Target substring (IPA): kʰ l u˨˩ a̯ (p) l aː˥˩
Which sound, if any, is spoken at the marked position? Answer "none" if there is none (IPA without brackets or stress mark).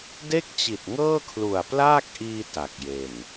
p